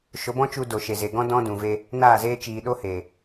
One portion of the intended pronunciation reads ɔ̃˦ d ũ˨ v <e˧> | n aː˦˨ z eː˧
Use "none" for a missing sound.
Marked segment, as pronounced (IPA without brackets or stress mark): e˧